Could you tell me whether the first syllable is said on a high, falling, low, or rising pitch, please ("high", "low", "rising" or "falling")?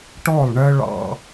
falling